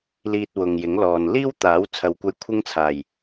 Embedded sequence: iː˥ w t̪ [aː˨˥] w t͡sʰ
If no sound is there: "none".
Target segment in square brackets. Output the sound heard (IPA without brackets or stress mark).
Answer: aː˨˥